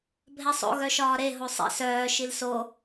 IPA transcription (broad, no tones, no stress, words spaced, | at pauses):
bʱɛsˤo̰ ɣœʃɒːɾe ɦosˤḭ sœː ʃilso